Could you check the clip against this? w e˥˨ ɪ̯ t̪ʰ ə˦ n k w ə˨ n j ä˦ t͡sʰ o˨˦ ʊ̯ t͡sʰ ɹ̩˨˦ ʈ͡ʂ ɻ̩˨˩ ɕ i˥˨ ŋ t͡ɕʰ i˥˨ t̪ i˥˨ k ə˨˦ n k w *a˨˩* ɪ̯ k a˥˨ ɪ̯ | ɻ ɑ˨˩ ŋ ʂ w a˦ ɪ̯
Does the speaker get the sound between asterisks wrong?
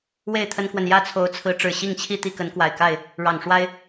no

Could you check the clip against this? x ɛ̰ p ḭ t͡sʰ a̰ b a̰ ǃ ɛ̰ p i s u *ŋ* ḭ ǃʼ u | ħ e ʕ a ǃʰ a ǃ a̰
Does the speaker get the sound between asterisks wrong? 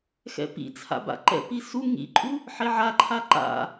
no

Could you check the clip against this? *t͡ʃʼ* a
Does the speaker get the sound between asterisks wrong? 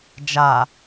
yes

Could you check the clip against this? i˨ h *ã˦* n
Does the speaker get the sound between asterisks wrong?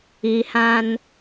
no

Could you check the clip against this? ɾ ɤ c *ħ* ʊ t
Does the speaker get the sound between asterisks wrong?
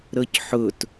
no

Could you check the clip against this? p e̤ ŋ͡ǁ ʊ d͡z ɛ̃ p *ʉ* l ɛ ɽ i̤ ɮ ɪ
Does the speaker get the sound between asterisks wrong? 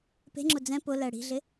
yes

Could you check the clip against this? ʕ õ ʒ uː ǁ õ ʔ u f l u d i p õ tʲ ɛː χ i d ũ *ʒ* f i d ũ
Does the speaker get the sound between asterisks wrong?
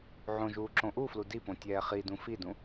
yes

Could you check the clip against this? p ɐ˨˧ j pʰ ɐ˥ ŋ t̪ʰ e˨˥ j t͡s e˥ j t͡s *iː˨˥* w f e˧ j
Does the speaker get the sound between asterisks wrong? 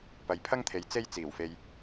yes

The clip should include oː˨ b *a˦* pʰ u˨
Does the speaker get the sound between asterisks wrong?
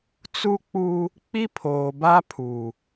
no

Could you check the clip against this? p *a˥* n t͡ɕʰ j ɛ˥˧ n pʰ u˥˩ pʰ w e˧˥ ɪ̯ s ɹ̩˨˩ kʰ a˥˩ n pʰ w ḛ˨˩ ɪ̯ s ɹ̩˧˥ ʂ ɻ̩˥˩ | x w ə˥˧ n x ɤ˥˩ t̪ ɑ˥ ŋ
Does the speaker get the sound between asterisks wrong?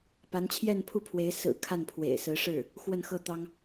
yes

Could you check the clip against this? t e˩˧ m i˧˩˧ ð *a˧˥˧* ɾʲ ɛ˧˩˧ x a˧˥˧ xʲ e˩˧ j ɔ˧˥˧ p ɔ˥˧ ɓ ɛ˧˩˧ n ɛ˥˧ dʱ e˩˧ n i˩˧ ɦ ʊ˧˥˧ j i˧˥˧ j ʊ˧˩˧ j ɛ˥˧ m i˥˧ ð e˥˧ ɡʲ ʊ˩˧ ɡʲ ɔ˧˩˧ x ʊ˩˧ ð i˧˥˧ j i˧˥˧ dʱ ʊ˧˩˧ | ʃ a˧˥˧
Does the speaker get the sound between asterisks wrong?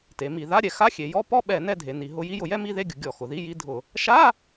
no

